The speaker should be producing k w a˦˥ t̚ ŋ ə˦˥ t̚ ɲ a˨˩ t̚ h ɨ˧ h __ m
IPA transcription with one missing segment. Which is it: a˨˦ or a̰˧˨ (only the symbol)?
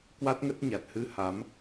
a˨˦